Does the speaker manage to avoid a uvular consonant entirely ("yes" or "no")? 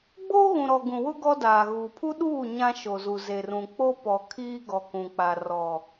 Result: yes